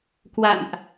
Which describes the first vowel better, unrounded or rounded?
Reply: unrounded